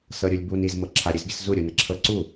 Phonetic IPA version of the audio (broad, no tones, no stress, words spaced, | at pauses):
sɤɾʲulʲbun iz mɤǁʰa ɾʲɨzɡʲəszu ɾʲunəǁʰɤ ǀu